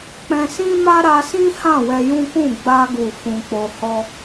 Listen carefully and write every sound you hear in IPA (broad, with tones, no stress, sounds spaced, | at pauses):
k͡p ɛ̃˧ s ĩ˦ m a˦ ɾ a˧ s ĩ˦ h ã˦˨ w ɛ˧ j ũ˦ k ũ˦˨ ɡ͡b a˧ ɡ u˨ f ũ˧ k͡p o˧ h ɔ˦